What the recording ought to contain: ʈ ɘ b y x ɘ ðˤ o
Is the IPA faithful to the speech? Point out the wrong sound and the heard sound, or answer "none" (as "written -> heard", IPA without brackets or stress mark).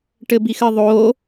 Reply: y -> i